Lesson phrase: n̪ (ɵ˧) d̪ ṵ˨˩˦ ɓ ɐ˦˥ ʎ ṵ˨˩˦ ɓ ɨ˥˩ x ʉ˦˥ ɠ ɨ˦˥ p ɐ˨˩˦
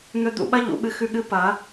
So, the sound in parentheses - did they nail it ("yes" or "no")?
yes